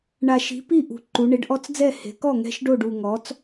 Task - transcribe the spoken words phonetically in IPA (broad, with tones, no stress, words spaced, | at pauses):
ɳa˨˩ʃi̤˩˥ pi˥˩ʔṳ˨˩ǃu˩˧ ɳe˩˥ɖʔɔ˧˥t͡sd͡zɛ˥˩ he̤˩˧kɔ˥˩ ŋɛ̤˧˥ʃ ɖo˥˩ɖu˨˩ŋɔ˩˥t͡s